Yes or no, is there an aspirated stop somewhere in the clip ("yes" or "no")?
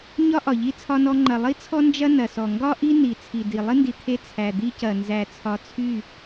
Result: yes